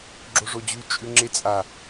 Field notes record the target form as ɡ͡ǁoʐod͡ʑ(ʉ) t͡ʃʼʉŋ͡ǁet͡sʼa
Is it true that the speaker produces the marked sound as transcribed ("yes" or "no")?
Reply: yes